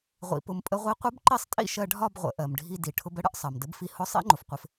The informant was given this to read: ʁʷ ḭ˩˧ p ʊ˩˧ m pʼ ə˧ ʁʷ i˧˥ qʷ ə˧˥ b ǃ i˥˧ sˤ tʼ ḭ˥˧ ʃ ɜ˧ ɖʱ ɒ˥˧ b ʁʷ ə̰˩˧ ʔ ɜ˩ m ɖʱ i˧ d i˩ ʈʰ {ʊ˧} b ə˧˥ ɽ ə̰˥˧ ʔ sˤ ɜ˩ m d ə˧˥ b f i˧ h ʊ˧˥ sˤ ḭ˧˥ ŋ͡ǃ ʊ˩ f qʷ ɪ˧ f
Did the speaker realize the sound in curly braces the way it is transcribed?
yes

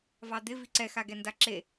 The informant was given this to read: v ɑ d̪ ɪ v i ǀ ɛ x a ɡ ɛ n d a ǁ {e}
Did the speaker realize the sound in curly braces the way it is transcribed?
yes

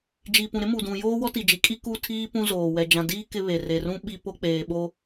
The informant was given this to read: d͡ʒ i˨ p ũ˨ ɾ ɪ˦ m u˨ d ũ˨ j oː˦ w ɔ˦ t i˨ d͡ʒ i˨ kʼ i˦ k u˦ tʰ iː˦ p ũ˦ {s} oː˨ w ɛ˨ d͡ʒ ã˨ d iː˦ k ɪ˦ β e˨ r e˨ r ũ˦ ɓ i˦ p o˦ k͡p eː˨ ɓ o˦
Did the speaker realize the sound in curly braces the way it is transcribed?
no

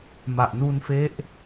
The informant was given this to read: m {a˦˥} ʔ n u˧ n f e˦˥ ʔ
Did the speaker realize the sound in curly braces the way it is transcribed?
no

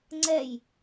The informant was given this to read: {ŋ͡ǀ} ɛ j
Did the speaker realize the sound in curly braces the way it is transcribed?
yes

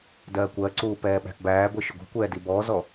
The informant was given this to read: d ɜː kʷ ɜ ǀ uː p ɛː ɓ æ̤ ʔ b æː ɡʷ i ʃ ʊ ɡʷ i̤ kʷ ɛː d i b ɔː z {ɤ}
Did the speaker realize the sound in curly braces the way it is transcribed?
no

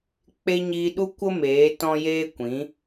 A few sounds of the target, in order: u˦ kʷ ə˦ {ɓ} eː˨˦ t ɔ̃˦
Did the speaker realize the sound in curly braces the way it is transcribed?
no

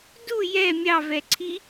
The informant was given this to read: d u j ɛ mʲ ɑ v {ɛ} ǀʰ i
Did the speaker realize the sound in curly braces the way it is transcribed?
yes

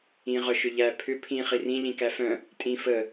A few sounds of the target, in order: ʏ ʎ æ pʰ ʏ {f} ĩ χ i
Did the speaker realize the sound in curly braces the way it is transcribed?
no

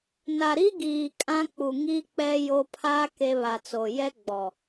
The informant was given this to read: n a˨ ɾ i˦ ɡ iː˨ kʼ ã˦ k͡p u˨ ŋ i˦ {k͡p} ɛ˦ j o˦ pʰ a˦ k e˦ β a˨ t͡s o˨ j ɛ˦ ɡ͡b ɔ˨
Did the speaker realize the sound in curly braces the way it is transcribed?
yes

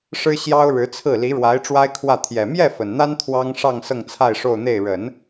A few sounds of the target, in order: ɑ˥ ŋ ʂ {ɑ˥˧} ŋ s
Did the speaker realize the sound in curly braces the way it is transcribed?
yes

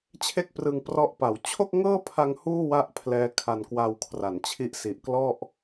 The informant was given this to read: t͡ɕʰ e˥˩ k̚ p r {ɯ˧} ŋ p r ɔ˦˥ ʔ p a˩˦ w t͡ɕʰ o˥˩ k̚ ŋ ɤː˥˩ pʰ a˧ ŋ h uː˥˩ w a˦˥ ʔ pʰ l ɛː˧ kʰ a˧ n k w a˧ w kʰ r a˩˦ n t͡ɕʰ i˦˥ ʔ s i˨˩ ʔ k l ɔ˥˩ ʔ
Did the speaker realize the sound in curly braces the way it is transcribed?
yes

